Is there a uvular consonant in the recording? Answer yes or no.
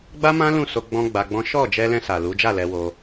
no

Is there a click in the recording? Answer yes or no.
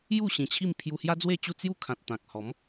no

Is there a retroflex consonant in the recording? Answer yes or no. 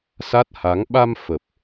no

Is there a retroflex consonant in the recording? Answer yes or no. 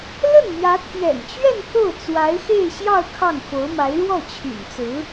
yes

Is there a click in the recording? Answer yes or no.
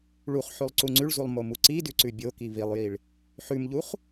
yes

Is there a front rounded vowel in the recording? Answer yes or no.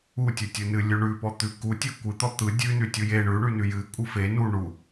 no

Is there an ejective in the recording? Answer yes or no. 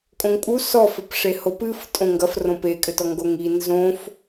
yes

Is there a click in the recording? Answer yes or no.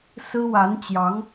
no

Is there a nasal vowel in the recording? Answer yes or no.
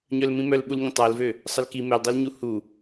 yes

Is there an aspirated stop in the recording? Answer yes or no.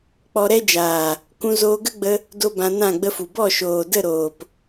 no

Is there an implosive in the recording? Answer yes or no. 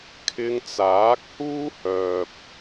no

